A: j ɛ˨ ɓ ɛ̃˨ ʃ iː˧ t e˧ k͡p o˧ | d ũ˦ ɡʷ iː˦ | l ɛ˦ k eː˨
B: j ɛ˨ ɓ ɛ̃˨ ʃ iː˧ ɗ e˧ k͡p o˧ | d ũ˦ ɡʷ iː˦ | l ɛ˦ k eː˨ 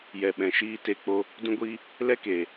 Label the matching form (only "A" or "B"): A